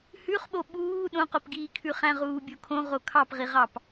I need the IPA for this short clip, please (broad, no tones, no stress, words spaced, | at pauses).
hʉχɓo ɓuː ɗõqopɡiːkʰʉ χæ̃ʁuːbʲokʰõ ʁokʰɑpʁiʁɑp